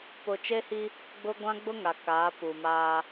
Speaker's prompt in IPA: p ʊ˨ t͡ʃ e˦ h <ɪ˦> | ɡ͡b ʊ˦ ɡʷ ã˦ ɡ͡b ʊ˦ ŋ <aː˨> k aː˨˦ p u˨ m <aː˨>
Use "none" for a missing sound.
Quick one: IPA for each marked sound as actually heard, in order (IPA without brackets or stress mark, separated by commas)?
i˦, a˨, aː˦